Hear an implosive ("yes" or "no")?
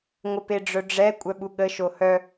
yes